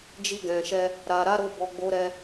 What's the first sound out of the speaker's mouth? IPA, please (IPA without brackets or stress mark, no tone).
d͡ʒ